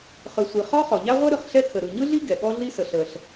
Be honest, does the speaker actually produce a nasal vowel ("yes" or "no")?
no